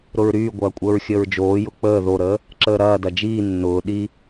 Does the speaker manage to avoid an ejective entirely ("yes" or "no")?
no